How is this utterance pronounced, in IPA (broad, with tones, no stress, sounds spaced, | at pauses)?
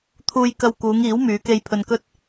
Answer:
t̪ʰ uː˧ j k ɐ˧ w k uː˨˧ ŋ iː˨˥ w m yː˨˧ k e˧ j pʰ ɵ˧ n k ɵ˥ t̚